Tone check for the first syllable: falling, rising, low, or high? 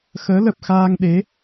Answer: rising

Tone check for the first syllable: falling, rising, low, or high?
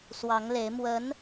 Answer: rising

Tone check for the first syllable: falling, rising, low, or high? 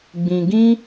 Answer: low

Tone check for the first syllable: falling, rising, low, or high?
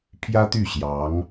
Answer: high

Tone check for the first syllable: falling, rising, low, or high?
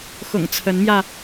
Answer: low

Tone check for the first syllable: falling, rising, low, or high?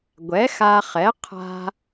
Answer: rising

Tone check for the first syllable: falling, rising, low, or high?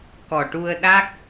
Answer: low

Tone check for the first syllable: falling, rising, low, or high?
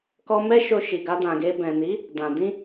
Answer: high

